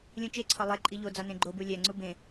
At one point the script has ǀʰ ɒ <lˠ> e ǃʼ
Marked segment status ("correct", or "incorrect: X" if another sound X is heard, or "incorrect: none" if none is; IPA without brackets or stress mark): correct